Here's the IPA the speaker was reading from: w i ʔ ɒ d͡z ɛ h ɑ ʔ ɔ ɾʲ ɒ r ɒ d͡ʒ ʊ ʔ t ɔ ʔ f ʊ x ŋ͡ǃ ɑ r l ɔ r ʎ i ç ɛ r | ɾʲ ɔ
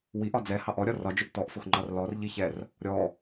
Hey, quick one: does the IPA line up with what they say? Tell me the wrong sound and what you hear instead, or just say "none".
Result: none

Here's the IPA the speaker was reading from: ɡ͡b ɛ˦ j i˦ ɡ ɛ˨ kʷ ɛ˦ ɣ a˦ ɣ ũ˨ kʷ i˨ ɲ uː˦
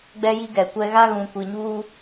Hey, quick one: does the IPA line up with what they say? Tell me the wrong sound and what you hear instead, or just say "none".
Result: none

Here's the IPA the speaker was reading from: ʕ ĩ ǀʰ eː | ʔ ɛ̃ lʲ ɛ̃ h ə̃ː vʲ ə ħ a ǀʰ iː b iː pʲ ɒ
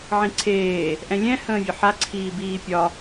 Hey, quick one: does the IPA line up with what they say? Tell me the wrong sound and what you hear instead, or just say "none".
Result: none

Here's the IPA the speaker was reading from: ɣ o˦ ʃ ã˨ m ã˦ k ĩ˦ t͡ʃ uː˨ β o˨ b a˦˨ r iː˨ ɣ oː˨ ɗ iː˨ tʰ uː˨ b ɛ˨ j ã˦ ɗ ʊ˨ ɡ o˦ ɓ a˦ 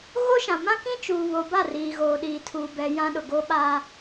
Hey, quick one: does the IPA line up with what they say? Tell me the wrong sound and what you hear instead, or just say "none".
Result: none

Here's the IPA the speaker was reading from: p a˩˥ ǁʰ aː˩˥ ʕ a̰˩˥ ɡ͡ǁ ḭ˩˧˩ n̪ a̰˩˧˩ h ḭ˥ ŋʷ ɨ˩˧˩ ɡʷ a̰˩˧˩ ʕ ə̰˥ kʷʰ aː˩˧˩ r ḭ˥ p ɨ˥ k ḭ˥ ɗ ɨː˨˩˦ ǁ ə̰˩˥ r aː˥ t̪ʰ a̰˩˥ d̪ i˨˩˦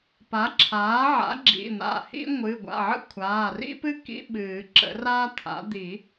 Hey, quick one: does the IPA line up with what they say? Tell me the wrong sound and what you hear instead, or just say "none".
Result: ɗ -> ɓ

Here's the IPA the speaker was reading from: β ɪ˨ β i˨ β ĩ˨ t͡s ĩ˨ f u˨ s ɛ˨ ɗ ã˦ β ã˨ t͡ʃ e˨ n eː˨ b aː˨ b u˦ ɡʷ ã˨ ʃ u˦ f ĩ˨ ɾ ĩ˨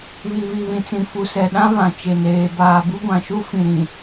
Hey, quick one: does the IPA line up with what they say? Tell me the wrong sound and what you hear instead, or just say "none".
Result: ɪ˨ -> i˨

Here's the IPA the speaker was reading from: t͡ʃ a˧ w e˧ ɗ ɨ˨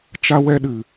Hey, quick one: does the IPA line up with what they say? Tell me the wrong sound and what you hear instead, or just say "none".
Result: e˧ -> ɛ˧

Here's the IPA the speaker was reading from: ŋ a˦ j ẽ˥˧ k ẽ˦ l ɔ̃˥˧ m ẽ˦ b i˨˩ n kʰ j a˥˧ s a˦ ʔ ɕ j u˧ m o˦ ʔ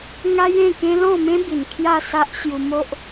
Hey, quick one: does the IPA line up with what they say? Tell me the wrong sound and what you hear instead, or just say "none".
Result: none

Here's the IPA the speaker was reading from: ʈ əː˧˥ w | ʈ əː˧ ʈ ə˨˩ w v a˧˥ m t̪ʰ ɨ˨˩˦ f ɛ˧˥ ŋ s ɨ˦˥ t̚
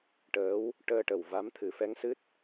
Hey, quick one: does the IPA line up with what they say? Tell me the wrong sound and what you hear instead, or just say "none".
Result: none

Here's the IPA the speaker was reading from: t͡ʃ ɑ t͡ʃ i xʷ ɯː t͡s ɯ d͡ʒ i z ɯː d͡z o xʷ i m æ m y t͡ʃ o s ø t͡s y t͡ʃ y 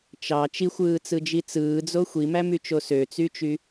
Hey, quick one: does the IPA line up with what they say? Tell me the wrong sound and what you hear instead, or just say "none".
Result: z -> t͡s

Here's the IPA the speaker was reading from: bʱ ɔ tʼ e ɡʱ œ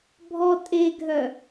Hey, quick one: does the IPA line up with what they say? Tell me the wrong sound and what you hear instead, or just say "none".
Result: none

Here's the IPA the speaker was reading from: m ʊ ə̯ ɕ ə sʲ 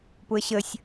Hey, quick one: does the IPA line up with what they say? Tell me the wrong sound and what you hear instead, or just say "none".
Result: m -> p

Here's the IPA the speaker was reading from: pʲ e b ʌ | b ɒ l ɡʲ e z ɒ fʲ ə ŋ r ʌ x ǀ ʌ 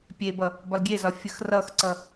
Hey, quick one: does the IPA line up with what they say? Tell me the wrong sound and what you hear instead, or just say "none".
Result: ŋ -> x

